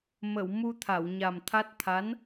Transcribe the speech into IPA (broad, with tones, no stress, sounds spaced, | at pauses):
m ə˨˩˨ w m u˧ t̪ʰ a˨˩˨ w ɲ a˨˩ m t̪ʰ a˦˥ t̚ t̪ʰ a˧˥ n